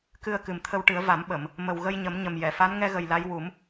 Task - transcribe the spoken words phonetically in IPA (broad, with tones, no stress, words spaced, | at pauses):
kɨ˧ə̯kɨ˨˩mt̪ʰə˧wʈɨ˨˩˦ə̯ va˨˩˦mɓə˨˩˨m | mə˨˩wɣə˧jɲə˨˩˦m ɲə˨˩mjɛ˨˩˨fa˧˥n ŋɛ˧ɣə˨˩j la˧˥j wu˨˩˦m